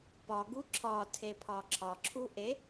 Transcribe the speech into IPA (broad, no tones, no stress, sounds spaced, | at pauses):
p ɒ ɡ u ǁʰ ɒ tʰ e pʰ ɒ ǁʰ ɒ ǁʰ u ʔ e